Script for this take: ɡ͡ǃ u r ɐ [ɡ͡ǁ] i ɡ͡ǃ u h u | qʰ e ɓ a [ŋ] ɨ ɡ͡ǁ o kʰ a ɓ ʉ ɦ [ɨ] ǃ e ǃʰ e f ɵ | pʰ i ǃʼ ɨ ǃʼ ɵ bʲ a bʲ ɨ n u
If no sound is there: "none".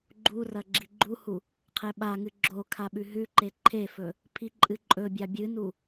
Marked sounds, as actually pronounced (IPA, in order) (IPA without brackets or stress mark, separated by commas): ɡ͡ǁ, ŋ, ʉ